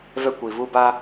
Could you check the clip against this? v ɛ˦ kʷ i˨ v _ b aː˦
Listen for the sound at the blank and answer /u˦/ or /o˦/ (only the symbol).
u˦